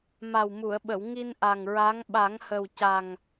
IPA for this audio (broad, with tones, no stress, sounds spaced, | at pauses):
m a˨˩ w m u˨˩˨ ə̯ ɓ ə˨˩˨ w ŋ i˧ n ʔ a˨˩ ŋ ɹ a˧˥ ŋ ɓ a˨˩˦ ŋ h ə˨˩ w c a˨˩ ŋ